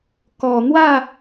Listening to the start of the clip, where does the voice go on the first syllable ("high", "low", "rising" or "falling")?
low